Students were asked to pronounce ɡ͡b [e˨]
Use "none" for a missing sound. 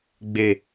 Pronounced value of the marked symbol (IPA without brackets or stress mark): e˦